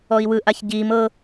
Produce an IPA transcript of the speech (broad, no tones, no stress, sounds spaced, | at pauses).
ɔ i̯ w ɯ ʔ a ç ɟ iː m ɤ